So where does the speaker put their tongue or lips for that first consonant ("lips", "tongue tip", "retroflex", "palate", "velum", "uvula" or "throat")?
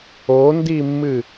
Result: tongue tip